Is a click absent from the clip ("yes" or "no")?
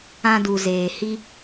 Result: yes